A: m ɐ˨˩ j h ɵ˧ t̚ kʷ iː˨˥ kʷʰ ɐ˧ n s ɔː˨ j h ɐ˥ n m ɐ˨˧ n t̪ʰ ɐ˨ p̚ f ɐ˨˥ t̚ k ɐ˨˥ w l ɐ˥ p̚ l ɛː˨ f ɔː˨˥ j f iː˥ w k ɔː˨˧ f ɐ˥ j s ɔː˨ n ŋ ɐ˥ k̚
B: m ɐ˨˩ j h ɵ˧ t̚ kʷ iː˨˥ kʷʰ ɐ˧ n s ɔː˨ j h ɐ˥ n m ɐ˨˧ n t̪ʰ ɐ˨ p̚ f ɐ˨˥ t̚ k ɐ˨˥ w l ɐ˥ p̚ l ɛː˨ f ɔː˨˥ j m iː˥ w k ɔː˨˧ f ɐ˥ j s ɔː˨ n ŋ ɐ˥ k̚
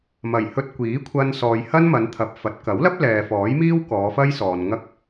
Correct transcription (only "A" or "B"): B